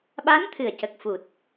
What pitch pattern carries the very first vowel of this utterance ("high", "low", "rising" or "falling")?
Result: rising